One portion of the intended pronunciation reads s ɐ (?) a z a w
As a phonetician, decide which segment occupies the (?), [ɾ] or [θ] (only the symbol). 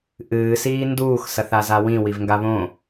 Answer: θ